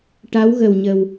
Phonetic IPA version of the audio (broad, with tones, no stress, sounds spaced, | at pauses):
ʈ a˧˥ w ɣ ə˨˩ w ɲ ə˨˩ w